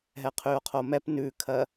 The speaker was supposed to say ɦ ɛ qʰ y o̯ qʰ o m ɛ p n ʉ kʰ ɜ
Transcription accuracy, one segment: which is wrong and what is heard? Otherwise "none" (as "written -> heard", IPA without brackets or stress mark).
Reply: none